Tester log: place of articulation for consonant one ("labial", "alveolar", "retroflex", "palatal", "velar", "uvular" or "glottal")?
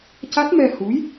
palatal